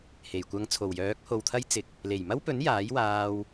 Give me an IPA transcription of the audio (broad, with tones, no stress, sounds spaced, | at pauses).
h e˨˩ j kʷ ɐ˧ ŋ t͡sʰ o˨˩ w j œː˨˥ k̚ h o˨ w t̪ʰ ɐ˥ j t͡s ɪ˨ k̚ | l e˨˩ j m ɐ˥ w p ɵ˨˥ n j aː˨˥ j w aː˧ w